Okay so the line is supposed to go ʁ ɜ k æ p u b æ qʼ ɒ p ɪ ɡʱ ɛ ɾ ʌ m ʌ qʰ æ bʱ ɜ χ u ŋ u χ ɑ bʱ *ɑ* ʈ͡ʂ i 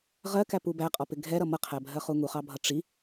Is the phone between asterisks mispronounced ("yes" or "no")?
yes